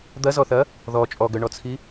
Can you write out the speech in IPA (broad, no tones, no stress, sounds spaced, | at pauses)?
d̪ ɐ z ɔ θ ɐ | ð ɔ t͡ʃʼ ɔ ɡ œ ɳ ɔ t͡sʰ i